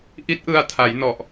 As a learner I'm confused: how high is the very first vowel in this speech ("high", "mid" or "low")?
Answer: high